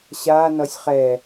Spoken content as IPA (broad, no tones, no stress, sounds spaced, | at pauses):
ɕ a n ʌ sʲ χ ɛ